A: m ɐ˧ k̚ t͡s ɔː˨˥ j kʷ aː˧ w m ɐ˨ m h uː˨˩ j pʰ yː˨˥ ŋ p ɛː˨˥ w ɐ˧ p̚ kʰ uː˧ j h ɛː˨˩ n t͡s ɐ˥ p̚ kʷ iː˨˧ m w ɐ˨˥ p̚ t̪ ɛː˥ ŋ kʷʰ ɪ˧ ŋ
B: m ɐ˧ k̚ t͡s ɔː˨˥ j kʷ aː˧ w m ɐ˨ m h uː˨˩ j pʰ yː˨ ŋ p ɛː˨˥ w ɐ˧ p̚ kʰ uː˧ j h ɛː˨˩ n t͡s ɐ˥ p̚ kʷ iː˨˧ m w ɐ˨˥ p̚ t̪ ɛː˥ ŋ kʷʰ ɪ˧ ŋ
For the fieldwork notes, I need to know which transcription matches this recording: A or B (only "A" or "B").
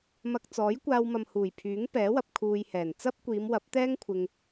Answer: A